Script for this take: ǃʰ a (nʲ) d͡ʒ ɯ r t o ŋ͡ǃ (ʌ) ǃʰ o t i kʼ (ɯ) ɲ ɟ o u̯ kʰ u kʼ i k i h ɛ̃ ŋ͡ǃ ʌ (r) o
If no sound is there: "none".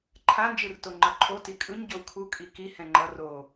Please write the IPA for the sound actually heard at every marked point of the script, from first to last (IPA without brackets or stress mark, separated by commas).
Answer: n, ʌ, ɯ, r